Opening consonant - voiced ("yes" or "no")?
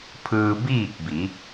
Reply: no